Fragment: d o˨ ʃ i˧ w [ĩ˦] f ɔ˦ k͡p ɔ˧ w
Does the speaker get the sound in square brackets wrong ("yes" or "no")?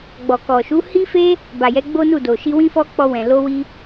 no